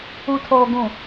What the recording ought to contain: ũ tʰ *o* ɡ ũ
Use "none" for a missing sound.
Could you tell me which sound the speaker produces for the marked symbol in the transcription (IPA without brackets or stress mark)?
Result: o